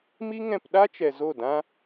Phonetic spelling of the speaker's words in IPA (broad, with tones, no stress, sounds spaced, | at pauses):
m i˦ ŋ ɛ̃˧ p ɗ a˦ t͡ʃ ɛ˨ z o˦˨ d ã˦